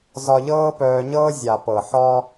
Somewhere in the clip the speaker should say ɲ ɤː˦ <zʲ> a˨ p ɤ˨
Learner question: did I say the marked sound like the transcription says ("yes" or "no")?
yes